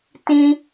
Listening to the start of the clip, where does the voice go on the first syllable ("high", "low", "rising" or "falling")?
high